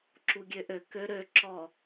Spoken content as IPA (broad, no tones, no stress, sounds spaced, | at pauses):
ǁ u ɡʲ ø ʔ ø k ø ɾ ø ǁ ɔ